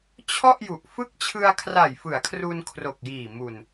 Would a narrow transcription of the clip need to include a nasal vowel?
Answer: no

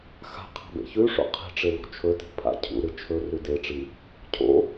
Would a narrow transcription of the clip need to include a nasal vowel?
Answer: no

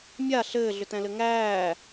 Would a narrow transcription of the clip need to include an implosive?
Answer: no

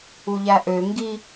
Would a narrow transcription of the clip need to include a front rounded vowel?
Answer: yes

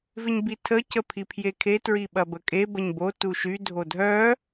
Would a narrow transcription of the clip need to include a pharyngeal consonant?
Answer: no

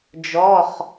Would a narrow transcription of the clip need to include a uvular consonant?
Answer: yes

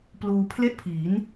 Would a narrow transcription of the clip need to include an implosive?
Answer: no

